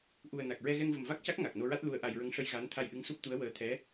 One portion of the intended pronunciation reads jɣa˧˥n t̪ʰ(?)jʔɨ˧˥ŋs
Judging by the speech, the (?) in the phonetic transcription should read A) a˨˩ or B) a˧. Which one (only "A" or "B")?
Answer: B